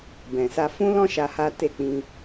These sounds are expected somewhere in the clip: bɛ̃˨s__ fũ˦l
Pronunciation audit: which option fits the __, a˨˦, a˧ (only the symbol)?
a˧